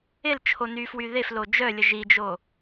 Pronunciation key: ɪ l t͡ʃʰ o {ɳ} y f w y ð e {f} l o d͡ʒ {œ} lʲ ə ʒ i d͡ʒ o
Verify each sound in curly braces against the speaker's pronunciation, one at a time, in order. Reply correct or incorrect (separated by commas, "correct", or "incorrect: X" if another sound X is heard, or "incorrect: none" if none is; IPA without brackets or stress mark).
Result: incorrect: n, correct, correct